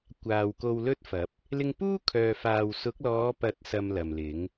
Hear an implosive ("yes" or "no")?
no